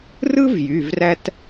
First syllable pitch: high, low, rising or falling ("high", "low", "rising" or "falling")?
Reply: high